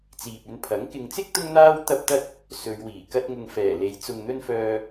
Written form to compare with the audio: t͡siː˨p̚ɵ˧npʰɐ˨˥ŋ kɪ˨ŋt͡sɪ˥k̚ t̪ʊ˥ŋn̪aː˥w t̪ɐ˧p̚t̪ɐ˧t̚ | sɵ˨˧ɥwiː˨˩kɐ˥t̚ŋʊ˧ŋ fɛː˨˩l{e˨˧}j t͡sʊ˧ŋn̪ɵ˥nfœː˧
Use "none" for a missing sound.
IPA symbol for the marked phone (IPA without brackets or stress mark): e˨˧